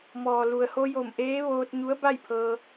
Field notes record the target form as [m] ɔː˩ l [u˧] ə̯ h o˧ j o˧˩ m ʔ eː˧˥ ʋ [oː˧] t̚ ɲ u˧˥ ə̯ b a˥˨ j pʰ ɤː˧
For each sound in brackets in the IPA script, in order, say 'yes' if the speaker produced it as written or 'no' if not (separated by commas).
yes, no, yes